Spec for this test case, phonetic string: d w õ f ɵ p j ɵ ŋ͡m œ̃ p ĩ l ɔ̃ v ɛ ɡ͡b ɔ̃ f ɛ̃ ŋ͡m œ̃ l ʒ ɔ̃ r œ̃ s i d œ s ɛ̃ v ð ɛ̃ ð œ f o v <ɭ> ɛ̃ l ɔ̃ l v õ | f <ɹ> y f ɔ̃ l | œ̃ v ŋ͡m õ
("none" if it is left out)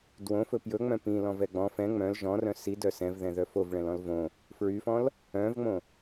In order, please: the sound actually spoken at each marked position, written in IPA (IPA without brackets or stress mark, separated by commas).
ɭ, ɹ